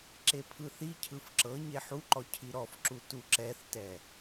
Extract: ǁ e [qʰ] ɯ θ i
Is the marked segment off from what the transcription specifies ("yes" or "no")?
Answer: yes